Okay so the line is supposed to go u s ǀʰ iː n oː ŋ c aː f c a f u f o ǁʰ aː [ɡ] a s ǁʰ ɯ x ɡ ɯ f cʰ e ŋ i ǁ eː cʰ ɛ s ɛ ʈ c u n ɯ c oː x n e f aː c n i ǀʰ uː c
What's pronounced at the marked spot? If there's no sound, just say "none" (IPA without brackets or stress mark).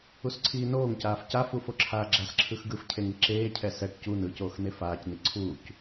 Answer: ɡ͡ǁ